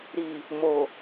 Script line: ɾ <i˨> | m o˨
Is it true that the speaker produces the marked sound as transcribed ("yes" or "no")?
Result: yes